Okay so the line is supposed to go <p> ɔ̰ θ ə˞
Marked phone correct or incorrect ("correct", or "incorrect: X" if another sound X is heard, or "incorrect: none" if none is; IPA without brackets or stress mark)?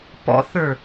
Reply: correct